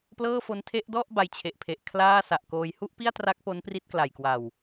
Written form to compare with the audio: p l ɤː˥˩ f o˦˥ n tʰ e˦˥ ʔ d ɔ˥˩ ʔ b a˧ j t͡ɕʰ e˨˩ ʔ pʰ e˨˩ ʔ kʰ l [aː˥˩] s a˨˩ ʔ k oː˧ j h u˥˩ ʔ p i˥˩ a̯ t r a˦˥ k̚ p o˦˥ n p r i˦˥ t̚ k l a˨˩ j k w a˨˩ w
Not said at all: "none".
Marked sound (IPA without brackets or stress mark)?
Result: aː˥˩